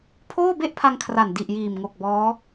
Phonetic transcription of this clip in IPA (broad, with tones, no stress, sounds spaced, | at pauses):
pʰ oː˥˩ b e˥˩ ʔ pʰ a˧ ŋ kʰ r a˨˩ n d i˨˩ ʔ j iː˨˩ m ŋ o˨˩ k̚ b ɔː˦˥